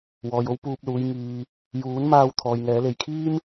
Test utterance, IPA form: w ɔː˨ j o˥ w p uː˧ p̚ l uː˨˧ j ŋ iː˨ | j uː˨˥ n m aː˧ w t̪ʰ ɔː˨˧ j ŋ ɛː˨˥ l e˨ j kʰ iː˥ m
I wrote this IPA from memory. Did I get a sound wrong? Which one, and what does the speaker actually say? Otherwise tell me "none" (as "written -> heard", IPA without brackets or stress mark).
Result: none